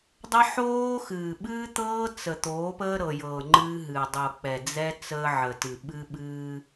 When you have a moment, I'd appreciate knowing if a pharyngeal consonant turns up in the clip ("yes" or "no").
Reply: yes